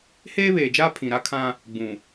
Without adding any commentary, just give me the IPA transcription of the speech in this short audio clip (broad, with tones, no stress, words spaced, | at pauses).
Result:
heː˦βeː˨d͡ʒaː˦ pʰĩ˨ɾa˦kʰã˦ | ɡ͡bũ˨